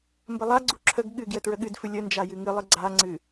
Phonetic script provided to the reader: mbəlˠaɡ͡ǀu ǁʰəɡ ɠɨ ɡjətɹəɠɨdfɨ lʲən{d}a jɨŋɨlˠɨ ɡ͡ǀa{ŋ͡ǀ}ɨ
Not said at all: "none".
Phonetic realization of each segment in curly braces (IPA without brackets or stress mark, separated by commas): d͡ʒ, ŋ͡ǀ